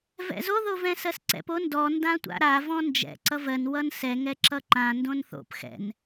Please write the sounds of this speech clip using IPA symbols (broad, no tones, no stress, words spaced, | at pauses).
vɛ̰zo ðovɛ̃sɜsǀɛ̰p ondɔ ndãtʷa̰ɾa vɔ̃nd͡ʒɛ̰ ǀʌvɜn wʌnsɛ ŋɛǁʌǃã ndõnθo̰p xɛ̰n